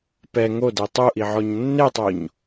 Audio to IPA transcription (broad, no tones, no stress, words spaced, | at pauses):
pɛ ŋode tˤuʔiʕɔɲ nːetˤoɲ